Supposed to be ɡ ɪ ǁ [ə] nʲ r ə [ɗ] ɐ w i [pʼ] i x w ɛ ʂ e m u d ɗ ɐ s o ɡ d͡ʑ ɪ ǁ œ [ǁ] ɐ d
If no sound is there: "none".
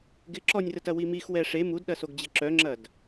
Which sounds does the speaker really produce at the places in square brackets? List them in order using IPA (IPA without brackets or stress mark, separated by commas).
ɔ, t, m, ŋ͡ǁ